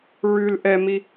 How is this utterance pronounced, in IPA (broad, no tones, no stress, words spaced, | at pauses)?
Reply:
ɹʉl ʔɛmi